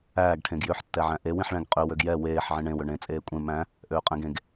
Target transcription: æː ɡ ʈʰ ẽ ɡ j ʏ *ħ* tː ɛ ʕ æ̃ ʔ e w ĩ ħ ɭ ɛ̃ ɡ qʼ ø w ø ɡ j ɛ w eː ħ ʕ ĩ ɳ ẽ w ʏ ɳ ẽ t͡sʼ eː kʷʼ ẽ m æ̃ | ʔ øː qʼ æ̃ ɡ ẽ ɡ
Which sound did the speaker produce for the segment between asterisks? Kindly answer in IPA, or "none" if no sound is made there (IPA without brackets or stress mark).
ħ